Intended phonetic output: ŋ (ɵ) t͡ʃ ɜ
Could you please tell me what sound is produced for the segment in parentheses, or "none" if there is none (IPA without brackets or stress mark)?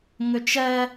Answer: ɵ